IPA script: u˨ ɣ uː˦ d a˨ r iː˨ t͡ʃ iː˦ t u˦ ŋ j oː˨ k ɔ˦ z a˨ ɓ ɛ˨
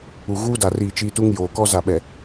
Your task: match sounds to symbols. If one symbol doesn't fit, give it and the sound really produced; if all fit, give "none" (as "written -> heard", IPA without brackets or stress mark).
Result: none